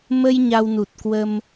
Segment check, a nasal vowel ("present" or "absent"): absent